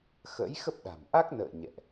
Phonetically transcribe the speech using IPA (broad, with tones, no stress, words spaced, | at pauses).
xə̰˧˥j xə˦˥p̚ɗa̤˨˩m ʔa˦˥k̚nə̰ː˧˨ ɲɛ̰˧˨ʔ